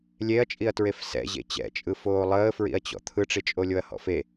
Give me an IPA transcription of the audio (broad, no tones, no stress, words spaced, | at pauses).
lʲeɐ̯t͡ʃʼiɐ̯tɹef sɛ̰ʑḛ t͡ɕɛ̰t͡ʃʼɯ foːlˠəːfɹḭɐ̯t͡ɕɔ̰ t̪ʰɯʈ͡ʂit͡ʃʼolʲoɐ̯ hɔ̰fe